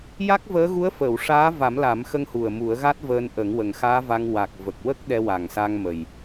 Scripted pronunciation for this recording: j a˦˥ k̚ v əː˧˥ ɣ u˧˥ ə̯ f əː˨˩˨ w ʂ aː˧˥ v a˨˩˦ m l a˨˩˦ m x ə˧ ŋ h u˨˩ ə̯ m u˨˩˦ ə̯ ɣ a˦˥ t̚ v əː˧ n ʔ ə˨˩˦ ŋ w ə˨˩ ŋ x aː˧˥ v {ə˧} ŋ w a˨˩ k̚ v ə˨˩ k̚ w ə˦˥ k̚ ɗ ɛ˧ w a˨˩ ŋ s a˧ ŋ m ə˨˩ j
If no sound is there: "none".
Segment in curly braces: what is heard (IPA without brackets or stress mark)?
a˧